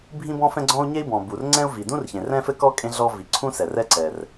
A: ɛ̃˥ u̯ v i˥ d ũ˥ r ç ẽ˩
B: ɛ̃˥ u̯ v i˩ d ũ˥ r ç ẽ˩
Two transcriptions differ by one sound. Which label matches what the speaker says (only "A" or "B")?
B